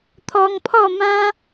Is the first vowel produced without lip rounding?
no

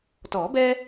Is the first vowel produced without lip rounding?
no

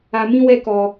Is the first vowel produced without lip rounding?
yes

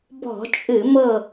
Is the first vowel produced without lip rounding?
no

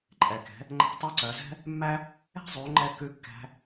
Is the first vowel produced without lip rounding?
yes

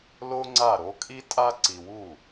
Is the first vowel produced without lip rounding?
no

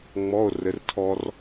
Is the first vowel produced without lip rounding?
no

